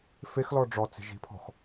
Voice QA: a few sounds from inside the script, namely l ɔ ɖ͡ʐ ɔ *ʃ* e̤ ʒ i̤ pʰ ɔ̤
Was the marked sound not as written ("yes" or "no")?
yes